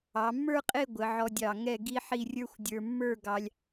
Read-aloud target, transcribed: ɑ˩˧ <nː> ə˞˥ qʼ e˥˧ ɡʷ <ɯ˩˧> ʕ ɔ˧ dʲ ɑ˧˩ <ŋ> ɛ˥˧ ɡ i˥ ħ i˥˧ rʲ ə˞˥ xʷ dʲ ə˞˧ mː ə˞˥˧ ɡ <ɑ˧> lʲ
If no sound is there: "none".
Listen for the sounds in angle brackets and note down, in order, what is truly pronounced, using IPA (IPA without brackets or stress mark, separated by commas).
mː, ə˩˧, ŋ, ɑ˧